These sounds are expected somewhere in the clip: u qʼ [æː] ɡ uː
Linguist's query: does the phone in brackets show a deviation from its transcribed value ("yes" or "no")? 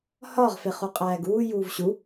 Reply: no